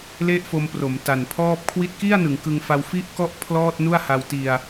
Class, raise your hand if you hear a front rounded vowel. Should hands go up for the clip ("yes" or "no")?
no